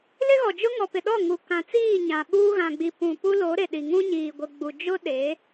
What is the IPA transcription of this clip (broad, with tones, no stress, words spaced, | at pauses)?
lɪ˦ɣɔ˨ d͡ʒʊ˦ŋɔ˨pɪ˨ ɗɔ˦˨ŋu˨ kã˨t͡siː˦˨ ɲã˨ɓuː˦ɣã˨ɡ͡bi˨ pũ˨ pu˦lo˨˦ɾe˨ɗi˨ ŋũ˦ɲiː˨ɡʷe˨ ɡ͡bu˨ d͡ʒʊ˦ɗe˨˦